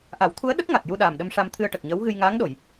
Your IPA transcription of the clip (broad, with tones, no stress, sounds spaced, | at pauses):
ʔ a˨˩˦ w t̪ʰ u˧˥ ə̯ ɗ ə˦˥ k̚ ŋ a˨˩ t̚ j u˧ ɗ aː˨˩ m ɗ ə˧ m ʂ a˧ m t̪ʰ ɨ˧ ə̯ ʈ ə˨˩ k̚ ɲ əː˧˥ w ɣ ɨ˧ j ŋ aː˧˥ ŋ ɗ o˨˩˨ j